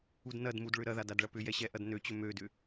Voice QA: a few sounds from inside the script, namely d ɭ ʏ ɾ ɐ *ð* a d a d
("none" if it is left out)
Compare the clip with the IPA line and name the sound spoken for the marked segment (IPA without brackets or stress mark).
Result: ð